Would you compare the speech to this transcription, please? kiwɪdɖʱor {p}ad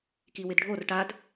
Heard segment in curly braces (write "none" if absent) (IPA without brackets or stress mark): ʈ